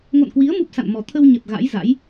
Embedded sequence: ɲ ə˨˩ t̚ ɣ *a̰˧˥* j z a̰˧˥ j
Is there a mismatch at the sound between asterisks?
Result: no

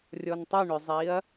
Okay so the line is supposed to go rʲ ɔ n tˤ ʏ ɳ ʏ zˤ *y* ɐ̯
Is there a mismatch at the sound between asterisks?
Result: yes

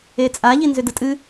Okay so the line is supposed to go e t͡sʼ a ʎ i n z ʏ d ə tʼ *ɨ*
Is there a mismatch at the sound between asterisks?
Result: no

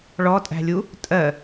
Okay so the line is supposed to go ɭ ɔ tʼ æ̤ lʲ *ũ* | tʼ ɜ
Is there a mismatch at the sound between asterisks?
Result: yes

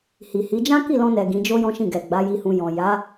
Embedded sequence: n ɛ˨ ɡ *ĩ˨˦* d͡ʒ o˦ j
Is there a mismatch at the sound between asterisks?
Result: no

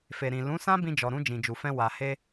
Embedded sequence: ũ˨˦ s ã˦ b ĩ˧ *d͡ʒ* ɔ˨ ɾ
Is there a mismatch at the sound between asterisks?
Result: no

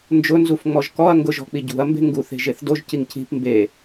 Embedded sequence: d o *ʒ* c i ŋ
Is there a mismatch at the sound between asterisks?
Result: no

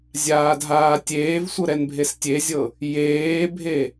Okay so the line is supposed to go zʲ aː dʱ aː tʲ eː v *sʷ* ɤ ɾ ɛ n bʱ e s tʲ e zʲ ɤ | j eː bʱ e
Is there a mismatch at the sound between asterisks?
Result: no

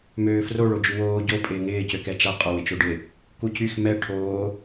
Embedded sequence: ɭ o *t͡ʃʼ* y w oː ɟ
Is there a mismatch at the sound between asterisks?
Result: yes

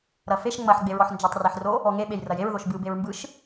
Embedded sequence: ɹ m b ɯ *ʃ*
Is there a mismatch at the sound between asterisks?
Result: no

